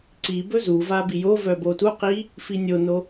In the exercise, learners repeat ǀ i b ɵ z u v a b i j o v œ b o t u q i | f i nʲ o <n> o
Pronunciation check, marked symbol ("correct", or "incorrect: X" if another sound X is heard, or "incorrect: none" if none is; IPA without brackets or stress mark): correct